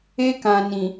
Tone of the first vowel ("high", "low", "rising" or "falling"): high